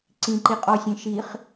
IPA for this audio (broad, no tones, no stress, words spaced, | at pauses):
ǀĩǃiqʼɔsʲẽ ʃiχ